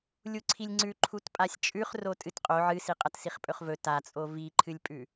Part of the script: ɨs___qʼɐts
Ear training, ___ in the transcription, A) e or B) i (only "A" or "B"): B